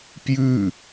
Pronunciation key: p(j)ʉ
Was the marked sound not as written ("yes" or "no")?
no